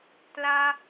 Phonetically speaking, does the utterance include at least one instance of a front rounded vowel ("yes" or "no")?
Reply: no